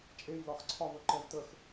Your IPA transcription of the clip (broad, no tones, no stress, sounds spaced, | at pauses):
t͡ʃʼ e j l ɒ x ǀʰ ɒ v ə ǃ ɛ v t ə x